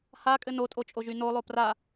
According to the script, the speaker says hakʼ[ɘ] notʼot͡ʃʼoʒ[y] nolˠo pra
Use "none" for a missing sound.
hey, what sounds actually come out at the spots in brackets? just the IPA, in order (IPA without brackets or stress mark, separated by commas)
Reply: ɘ, y